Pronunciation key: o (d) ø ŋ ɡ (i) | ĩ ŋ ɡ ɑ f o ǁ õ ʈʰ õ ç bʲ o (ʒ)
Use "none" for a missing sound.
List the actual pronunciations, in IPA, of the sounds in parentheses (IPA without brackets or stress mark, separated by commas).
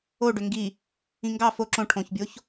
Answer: ɖ, i, ç